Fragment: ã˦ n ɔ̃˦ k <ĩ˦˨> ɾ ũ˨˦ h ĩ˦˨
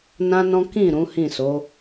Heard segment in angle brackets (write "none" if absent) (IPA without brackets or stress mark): ĩ˦˨